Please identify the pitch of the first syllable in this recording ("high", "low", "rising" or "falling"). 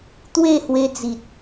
falling